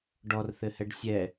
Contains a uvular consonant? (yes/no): no